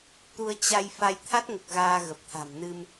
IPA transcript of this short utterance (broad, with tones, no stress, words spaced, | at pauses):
t̪u˧ə̯t͡ɕa˧j fa˧j t̪ʰa˦˥t̚ŋə˨˩p̚ ɣaː˧ɣə˨˩p̚t̪ʰa̤˨˩mnɨ˧m